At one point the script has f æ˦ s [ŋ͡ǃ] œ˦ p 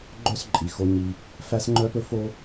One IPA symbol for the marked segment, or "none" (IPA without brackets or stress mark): ŋ͡ǃ